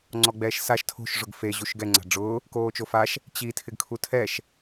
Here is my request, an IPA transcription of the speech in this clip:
ŋ͡ǀ ɔ ɡ͡b ɛː ʃ s a ʃ tʰ o̤ ʃ ʐ ʊ ɡ f e ʑ u ʃ ɡ ɛ ŋ͡ǀ a̤ ɖ͡ʐ ʊː | k oː t͡ʃ o f a ʃ | t͡ɕ i tʰ ɪ ɡ kʰ u tʰ ɛ ʃ

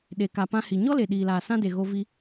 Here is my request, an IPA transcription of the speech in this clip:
ɗ e˨ k a˨ p ã˧ h i˨ ɲ ɔ˦ l e˨ ɗ iː˨ l aː˨ s ã˦ d e˨ ɣ o˧ v i˧

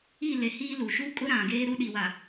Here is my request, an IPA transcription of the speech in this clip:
i˦˨ l e˨ h iː˦ l u˨ ʃ u˦ kʼ ʊ˦ ɾ ã˨ ɡ eː˦ ɾ u˦ ɗ i˨ w a˨

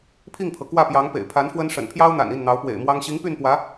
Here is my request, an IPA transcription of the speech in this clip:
pʰ i˥˩ ŋ pʰ ɤ˩ k w ä˥˩ p j ɑ˧˥ ŋ p ḛ˨˩ ɪ̯ pʰ a˧˥ n f w ə˥ n ʂ ə̰˨˩ n pʰ j ɑ˥ ʊ̯ n̪ a̰˨˩ n i˥˩ n n̪ ɑ˧˥ ʊ̯ p w ḛ˨˩ ɪ̯ m w ɑ˥ ŋ ɕ i˧˥ ŋ p y˥˩ n p w ä˧˥

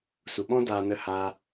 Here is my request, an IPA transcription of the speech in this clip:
s u˨ ɓ ɔ̃˦ d aː˧ n ə˦˨ h aː˧

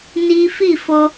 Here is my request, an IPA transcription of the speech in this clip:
n i˦ f i˦˨ f o˧

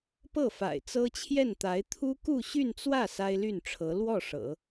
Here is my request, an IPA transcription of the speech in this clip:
p ɤ˥˩ f a̰˨˩ ɪ̯ t͡s ɤ˥ t͡ɕʰ j ɛ˥˩ n t̪ a˧˥ ɪ̯ t̪ʰ u˥ k u˥˧ ɕ y˥˧ n t͡s w ä˥˩ s a˥ ɪ̯ l y˥˩ n ʈ͡ʂʰ ɤ˧˥ l w ɔ˥˩ ʂ ɤ̰˨˩˦

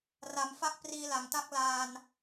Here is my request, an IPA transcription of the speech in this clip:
r a˩˦ m f a˦˥ k̚ p r iː˧ l a˨˩ ŋ t a˥˩ k̚ l aː˧ n

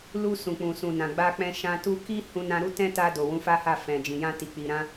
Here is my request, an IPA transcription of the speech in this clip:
l u˧ s ũ˨ k͡p ũ˨ s ũ˨ n ã˨ ɡ͡b a˧ k͡p ɛ̃˧ ʃ ã˧ t u˦ k i˦ h ũ˧ n ã˧ ɾ u˦ t ɛ̃˦ t a˧ d o˨ w ũ˨˦ f a˦ h a˦˨ f ɛ̃˨ d͡ʒ ĩ˨ j ã˧ t i˨ k͡p i˨ ɾ ã˧

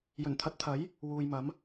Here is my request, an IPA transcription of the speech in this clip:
j ɵ˨˩ n t̪ʰ ɐ˨˥ t̚ t̪ʰ ɐ˨˥ j | w uː˨ j m ɐ˨˥ m

